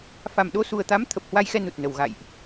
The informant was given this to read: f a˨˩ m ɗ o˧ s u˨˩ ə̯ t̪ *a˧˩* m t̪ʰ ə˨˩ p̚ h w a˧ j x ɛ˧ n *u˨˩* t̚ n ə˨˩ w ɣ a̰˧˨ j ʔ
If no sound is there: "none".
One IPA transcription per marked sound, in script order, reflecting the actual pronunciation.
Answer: a˨˦, u˨˩

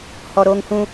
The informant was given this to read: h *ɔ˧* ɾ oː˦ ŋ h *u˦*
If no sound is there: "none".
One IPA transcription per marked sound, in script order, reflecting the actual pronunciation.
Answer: ɔ˧, ũ˦

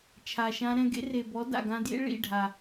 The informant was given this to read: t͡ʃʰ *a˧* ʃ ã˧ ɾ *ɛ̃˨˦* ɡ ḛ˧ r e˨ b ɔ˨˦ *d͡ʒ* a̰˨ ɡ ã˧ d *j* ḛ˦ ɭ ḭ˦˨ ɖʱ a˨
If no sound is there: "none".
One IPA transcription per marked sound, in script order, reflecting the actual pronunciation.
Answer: a˨, ɛ̃˧, d, j

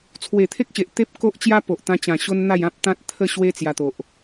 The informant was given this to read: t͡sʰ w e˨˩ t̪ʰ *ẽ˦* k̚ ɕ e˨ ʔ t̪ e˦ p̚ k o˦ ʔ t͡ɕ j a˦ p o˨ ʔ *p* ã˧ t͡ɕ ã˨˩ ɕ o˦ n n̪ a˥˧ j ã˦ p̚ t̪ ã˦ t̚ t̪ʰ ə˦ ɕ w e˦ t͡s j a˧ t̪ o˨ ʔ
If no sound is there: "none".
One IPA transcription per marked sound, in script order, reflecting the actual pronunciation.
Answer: e˦, t̪

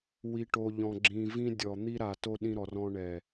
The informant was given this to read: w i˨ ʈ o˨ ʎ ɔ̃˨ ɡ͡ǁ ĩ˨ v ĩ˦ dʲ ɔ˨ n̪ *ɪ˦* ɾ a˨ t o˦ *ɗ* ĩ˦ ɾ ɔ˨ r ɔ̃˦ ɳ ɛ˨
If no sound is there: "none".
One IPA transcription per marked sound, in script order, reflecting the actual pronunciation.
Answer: i˦, ɗ

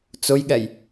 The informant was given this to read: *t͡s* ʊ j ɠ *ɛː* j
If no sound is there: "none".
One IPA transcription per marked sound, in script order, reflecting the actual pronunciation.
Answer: t͡s, ɛ

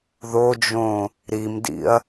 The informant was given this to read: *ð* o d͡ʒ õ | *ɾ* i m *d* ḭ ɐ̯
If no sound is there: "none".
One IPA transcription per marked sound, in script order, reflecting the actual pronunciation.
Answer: ð, ɾ, d

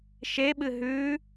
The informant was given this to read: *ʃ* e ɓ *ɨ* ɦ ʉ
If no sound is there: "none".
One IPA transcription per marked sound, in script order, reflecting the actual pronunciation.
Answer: ʃ, ɨ

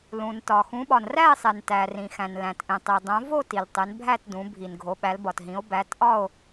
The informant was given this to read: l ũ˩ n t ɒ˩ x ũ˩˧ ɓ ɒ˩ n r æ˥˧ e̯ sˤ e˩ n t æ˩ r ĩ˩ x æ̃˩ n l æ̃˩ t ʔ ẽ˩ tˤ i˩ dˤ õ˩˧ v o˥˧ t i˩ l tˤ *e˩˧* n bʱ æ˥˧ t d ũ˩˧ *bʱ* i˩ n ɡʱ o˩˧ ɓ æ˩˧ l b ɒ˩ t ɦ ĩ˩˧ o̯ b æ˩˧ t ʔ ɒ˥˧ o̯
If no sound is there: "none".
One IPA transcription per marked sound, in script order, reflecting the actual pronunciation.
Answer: e˩˧, bʱ

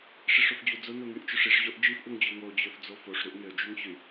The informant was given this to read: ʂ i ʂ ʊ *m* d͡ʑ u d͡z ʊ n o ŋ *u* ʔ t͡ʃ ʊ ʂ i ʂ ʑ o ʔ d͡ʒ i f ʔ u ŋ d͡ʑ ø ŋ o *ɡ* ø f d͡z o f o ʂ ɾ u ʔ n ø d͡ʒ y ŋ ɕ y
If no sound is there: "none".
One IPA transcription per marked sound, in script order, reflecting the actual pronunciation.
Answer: f, y, d͡ʑ

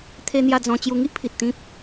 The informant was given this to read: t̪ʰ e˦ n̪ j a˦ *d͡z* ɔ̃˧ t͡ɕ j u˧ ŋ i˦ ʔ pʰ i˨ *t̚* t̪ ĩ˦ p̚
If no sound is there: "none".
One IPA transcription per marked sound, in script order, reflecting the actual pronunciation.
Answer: d͡z, t̚

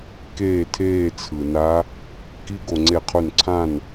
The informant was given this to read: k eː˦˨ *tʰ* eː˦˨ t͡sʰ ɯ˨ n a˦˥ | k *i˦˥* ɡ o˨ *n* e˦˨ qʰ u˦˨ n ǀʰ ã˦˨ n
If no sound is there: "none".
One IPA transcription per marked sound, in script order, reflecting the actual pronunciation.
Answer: tʰ, i˦˥, ŋ͡ǀ

